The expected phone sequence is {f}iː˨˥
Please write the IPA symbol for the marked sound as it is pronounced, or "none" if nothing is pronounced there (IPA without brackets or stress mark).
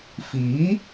f